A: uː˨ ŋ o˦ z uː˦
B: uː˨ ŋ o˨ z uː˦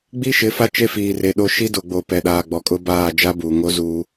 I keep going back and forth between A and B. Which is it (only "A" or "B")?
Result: A